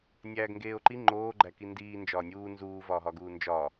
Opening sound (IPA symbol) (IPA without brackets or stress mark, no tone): nʲ